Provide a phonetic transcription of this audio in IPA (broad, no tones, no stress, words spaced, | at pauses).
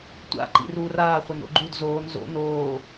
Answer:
tʷa̰ ǃḭruːraː χʷano̰ɡ͡ǃud zoːn zo̰ noː